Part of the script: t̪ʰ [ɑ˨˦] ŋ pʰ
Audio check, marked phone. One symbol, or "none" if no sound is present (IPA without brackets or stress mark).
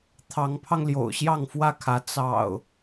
ɑ˨˦